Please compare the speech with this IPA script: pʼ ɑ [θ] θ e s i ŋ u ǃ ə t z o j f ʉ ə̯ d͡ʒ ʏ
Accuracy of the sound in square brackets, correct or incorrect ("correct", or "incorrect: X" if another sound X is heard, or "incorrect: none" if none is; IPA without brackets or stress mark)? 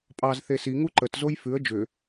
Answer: incorrect: z